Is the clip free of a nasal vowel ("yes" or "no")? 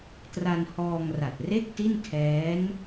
yes